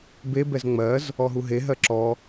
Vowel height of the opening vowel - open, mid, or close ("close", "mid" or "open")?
mid